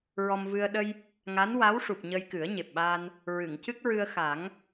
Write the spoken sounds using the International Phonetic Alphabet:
ɹɔ˧mvɨ˧ə̯ ɗə˧j | ŋa˧˥nwa˧˥wʂu˨˩p̚ ɲə˧jkɨ˨˩˦ə̯ɲe˨˩p̚ɓaː˧n | ɹɨ˨˩˨ŋcɨ˦˥k̚ɹɨ˧ə̯ xa˨˩˦ŋ

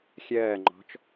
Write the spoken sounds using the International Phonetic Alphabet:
xʲɜːŋ͡ǃɔ̤t͡ʃ

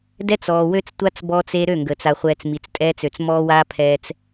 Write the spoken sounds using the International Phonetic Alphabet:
dɛ˦t͡sɔː˨ wø˦t͡stʷa˦t͡s bɔː˦t͡se˦ ɾø˦˨ŋɡəː˨t͡s a˨χʷɛː˨t͡s mi˨t͡stʼɛː˦t͡sø˨t͡s mɔː˦waː˦ pʰɛː˦t͡s

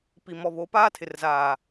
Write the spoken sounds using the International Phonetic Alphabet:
pi˨mɔ˨βo˨˦ paː˦tʰɪ˨rzaː˨

